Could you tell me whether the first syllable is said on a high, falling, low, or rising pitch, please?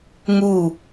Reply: falling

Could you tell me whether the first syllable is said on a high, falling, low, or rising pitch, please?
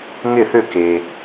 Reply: falling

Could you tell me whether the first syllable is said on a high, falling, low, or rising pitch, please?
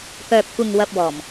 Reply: low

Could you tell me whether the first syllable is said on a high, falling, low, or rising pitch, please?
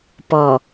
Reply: low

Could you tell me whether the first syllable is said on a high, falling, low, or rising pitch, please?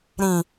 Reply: low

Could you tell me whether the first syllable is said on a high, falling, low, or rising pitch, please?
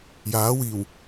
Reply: rising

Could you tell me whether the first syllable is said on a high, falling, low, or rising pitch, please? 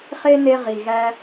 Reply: high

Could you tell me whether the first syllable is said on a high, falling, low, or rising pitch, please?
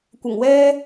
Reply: low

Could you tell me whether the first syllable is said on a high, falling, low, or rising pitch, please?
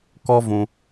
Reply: high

